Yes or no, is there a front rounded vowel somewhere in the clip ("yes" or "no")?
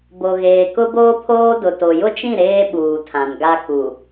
no